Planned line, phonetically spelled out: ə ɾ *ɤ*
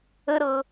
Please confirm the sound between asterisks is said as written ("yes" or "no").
yes